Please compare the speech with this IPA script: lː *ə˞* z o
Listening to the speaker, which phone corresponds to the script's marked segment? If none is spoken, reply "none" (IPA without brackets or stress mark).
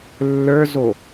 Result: ə˞